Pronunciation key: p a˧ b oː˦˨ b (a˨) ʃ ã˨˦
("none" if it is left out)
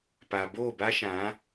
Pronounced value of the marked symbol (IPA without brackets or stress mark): a˦